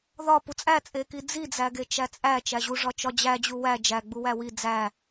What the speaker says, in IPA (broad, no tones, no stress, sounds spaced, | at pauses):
ð ɒ p u t͡sʼ æ t͡sʼ e k i d͡z i d͡z æ ɡ e t͡ʃ æ t͡sʼ æ t͡ʃ æ ʑ u ʐ ɒ t͡ʃ ɒ d͡ʑ æ d͡ʑ u w æ d͡ʒ æ ɡ͡b u w æ w i d͡z æ